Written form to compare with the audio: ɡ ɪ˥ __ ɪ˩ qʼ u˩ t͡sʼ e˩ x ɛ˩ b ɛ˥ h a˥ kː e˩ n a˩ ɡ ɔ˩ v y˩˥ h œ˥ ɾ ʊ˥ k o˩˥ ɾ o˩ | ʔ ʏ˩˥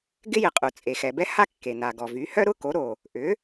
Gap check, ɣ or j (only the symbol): j